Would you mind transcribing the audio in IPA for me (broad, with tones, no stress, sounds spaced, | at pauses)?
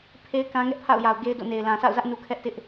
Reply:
pʰ e˦ ɪ̯ k ã˦ ŋ ɛ˦ ʔ pʰ a̰˦˨ ʊ̯ j a˨ ʊ̯ ɡ e˦ ɪ̯ d o̰˦˨ n e˨ ɪ̯ l ã˨ s a̰˦˨ ʊ̯ z ä˦ ʔ n u˦ kʰ ɛ˦ ʔ t ɪ˦ ʔ